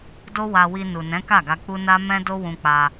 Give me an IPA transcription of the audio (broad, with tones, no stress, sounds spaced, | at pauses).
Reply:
d o˦ w a˧ w i˧ n u˨ n ɛ̃˨˦ k a˦˨ ɡ a˧ k͡p u˦ n a˦ m ɛ̃˦ d o˦ w ũ˧ k͡p a˧